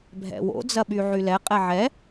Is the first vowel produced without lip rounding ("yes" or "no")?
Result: yes